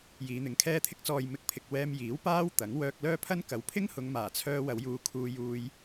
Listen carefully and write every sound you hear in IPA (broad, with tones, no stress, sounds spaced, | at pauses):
j iː˨˧ n̪ ɪ˨˧ ŋ kʰ ɛː˥ t̪ʰ ɪ˧ k̚ t͡s ɔː˨ j m ɪ˨˥ k̚ pʰ ɪ˨ k̚ w ɛː˧ m j iː˨˥ w p aː˥ w t̪ ɐ˨˥ ŋ w œː˧ k̚ l œː˥ pʰ ɐ˥ n k ɐ˨˧ w pʰ ɪ˥ ŋ h ʊ˨˧ ŋ m aː˨˩ t͡sʰ œː˧ w ɐ˨˧ w j uː˧ kʰ uː˧ j uː˧ j